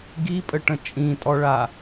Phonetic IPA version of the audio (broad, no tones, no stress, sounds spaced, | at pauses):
ɡ i pʼ ə ʈ ə̃ t͡ʃʼ ĩ tʼ ɔ ɭ a